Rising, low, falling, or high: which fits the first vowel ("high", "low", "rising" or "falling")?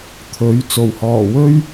rising